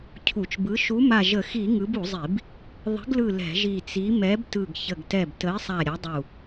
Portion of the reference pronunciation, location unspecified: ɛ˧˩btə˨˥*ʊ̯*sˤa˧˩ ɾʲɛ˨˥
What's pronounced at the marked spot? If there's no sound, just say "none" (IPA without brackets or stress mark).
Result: ɪ̯